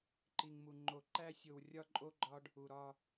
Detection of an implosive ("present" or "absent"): absent